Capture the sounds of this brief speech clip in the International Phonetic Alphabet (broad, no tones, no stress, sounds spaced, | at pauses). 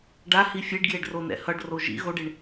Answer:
ɖ a h i fʲ e ɖ ɡ j e ɖ r o n ɛ̰ h ʌ ɖ r o ʒ ḭ ɣ o ɖ e ɳ